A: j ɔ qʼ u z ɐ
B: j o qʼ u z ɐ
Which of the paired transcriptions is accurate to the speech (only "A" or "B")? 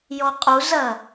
A